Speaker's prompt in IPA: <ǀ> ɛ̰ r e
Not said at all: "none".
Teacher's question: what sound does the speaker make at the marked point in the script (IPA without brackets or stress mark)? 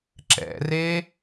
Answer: ǁ